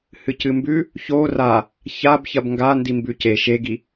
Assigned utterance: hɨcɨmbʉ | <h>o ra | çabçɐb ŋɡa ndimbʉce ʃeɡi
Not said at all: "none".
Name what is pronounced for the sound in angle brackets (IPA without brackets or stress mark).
ç